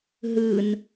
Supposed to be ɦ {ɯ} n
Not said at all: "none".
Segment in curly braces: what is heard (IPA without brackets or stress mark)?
ɯ